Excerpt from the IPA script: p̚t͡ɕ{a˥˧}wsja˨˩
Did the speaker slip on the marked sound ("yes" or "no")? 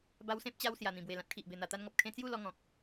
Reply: yes